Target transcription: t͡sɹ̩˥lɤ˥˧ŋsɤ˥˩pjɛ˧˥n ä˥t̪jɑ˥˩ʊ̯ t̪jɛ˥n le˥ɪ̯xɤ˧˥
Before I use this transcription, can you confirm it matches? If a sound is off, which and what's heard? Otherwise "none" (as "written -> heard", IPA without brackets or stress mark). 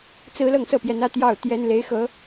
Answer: e˥ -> e˧˥